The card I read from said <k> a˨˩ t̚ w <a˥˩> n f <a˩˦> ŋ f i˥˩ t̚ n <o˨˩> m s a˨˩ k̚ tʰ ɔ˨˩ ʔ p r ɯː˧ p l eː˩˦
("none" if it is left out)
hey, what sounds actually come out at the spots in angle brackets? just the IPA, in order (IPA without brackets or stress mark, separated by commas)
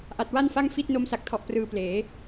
ʔ, a˥˩, a˥˩, o˧